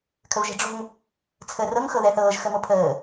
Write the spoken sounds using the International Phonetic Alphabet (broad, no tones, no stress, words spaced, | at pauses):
kʰəvʒɛ̤ɖ͡ʐo̤ŋ | t͡sʰəːrɤŋ xɤðɛθɤːʒ xəmopʰəː